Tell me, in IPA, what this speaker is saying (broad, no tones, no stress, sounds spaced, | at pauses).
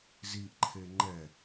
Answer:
z i ʔ ǃʰ e ŋ͡ǃ ɛ